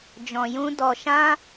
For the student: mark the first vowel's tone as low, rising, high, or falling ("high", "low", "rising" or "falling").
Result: low